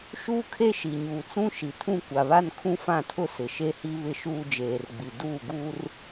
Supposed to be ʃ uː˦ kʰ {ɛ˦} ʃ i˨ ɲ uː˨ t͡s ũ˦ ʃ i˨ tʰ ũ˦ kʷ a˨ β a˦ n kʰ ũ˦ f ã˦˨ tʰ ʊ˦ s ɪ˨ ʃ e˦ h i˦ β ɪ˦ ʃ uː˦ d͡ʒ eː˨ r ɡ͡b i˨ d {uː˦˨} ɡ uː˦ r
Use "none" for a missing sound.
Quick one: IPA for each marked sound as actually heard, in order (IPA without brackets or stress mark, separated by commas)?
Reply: e˦, uː˦˨